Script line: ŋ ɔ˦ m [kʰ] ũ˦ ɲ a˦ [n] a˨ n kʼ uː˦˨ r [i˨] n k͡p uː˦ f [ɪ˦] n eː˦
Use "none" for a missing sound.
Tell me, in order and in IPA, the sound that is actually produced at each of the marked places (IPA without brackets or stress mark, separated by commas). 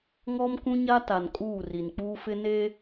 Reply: k, t, i˨, ɪ˦